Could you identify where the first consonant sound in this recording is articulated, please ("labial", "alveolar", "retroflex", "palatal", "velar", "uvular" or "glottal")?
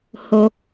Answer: glottal